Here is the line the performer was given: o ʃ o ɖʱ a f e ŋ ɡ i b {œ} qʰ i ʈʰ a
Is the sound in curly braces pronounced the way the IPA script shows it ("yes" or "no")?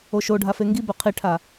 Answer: yes